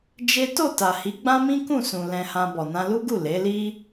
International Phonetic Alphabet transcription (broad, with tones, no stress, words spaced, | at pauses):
d͡ʒe˦ to˦˨ta˨hi˨˦ ɡ͡bã˦mĩ˦kũ˦˨sũ˨ lɛ̃˧hã˧ bɔ˨nã˧lu˦ɡu˦˨ le˨˦li˦